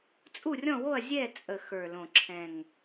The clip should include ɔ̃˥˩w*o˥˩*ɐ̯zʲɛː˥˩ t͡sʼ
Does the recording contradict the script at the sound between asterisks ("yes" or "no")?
no